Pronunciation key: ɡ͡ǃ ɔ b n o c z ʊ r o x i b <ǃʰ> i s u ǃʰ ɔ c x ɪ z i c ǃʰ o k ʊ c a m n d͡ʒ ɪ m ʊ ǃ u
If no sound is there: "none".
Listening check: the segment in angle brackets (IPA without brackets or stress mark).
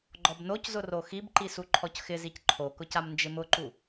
ǃ